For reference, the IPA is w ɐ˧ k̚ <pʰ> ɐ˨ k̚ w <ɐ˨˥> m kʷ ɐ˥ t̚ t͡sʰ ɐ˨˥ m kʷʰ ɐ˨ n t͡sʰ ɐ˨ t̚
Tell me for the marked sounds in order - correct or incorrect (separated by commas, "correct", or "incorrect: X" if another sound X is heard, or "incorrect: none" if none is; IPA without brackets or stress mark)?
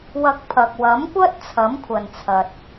correct, correct